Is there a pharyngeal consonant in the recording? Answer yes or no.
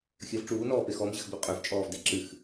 no